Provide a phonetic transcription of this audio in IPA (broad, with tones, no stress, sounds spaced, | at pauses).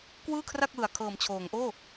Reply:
k w ɯː˥˩ kʰ r a˥˩ k̚ w ɯ˨˩ a̯ kʰ ɤː˩˦ m t͡ɕʰ oː˩˦ ŋ ʔ oː˥˩